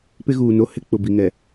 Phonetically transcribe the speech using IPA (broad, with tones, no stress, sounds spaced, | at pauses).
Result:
p ɪ˦ ɣ uː˨ n o˦ h ɪ˦ k͡p ʊ˨ b i˨ ŋ ɛ˨